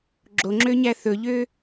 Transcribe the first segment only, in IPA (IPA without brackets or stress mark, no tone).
ɡ͡ǁ